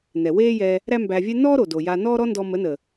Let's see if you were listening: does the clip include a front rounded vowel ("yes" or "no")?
no